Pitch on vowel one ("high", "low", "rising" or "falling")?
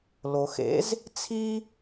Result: low